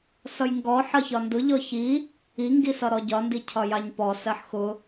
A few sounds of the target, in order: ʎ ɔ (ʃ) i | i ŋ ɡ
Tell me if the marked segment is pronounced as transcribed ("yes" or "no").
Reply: no